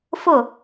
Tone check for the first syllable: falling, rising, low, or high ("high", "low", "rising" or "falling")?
falling